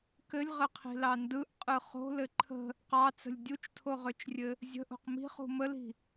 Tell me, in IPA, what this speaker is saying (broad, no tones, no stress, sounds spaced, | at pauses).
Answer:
k ɘ lʲ ʁ ɘ qʰ i̤ l ɑ n d ɯ ʔ qʼ ɯ χ o̤ l ɘ ǃʰ ə̤ | q ɑ t͡s ə̤ lʲ dʲ u t͡ʃ tʰ o ʁ ø t͡ʃ rʲ ɘ | zʲ ə̤ ʔ o̤ q m i̤ χ ṳ m ə l i̤